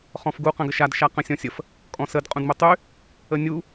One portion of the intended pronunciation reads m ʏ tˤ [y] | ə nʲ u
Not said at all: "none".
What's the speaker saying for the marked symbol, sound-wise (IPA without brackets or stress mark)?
y